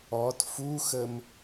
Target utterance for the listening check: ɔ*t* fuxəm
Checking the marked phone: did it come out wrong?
no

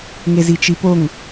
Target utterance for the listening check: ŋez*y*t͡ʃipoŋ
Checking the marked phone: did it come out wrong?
yes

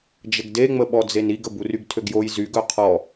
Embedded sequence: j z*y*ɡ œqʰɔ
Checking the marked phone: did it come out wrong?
no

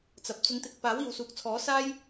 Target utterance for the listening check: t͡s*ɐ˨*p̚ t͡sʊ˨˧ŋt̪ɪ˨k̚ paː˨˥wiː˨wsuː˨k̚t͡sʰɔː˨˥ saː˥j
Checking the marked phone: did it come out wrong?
no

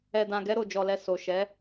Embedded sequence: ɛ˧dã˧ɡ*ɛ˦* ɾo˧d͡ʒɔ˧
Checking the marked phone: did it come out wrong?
no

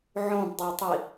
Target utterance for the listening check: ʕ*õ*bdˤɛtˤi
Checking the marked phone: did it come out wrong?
no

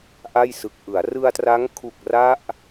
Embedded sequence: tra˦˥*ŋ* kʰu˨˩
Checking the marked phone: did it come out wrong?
no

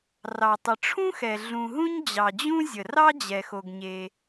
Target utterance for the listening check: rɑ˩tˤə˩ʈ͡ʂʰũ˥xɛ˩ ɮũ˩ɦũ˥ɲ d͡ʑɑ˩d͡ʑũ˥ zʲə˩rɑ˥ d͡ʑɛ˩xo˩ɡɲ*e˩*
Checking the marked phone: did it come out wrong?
no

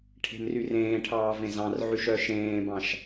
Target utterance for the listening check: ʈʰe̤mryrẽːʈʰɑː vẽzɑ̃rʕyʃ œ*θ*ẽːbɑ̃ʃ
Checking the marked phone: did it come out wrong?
yes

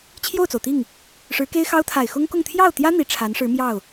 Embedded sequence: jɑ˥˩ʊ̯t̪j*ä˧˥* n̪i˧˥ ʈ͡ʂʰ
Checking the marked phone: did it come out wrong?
yes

